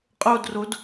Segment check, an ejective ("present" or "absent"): present